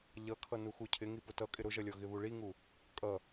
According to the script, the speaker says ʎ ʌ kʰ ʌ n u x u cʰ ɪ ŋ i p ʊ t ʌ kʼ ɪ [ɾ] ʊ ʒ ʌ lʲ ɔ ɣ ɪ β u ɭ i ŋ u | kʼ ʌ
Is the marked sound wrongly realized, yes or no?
no